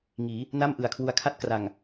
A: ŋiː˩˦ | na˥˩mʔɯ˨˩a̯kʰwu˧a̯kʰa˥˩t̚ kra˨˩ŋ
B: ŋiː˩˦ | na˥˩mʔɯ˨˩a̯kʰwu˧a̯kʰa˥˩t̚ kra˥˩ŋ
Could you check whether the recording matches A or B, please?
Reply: A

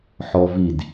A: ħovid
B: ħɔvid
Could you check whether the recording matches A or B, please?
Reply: B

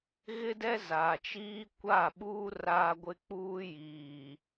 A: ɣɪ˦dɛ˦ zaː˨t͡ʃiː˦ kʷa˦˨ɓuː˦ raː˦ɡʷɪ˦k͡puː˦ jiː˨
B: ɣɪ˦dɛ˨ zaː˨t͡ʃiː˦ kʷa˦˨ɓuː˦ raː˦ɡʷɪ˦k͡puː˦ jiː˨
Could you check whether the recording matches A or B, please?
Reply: A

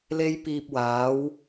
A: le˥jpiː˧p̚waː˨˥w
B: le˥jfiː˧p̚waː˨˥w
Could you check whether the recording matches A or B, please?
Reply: A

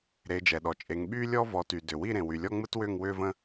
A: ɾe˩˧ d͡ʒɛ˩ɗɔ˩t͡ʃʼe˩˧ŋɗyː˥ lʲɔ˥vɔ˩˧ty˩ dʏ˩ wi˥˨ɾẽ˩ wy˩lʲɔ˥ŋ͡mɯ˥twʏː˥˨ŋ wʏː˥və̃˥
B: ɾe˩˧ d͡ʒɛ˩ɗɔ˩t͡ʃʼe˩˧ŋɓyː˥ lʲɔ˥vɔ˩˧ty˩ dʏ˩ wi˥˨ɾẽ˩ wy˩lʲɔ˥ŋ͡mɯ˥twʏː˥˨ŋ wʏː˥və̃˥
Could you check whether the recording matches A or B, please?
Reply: B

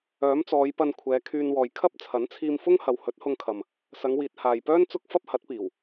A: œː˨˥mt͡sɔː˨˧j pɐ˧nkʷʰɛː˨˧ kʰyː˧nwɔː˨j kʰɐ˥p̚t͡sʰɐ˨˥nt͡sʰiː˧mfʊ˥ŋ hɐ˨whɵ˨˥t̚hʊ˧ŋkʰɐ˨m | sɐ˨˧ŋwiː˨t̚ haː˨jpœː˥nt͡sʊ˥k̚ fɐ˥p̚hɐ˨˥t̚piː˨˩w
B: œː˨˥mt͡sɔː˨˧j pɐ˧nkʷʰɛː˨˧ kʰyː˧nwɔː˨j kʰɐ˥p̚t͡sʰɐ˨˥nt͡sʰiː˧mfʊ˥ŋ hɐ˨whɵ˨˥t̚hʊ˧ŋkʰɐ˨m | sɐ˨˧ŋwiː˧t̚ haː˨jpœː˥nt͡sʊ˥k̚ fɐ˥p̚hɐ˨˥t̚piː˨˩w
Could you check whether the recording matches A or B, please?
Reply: A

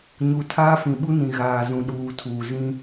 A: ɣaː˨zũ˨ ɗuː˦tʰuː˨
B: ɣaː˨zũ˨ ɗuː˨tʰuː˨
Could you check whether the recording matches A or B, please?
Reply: B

